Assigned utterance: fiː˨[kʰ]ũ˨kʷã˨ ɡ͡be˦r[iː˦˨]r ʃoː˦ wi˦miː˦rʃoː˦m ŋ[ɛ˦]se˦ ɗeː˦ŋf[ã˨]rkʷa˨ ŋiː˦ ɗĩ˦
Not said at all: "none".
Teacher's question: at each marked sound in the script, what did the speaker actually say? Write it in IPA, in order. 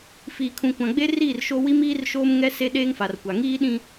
kʰ, iː˦˨, ɛ˦, a˨

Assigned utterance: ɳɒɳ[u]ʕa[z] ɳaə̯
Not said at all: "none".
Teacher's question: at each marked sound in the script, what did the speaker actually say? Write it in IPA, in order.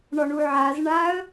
u, z

